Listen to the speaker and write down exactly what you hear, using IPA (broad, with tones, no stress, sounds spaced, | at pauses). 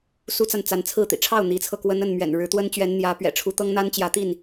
s u˦ t͡s a˨ n t͡s a˨˦ n t͡sʰ ɹ̩˥˨ t̪ ḭ˨˩ ʈ͡ʂʰ ɑ˥˨ ʊ̯ n̪ i˨˦ t͡sʰ ɤ˧ k w ə˦ n ə˥˨ n m ɥ ɛ̰˨˩ n ɻ ɻ̩˨˦ t̪ w ə˦ n t͡ɕ ɥ ɛ˨˦ n n̪ j ä˨˦ p ɥ ɛ̰˨˩ ʈ͡ʂʰ u˨˦ t̪ ɤ˦ ŋ n̪ a˦ n t͡ɕ j ä˨˦ t̪ i˥˨ n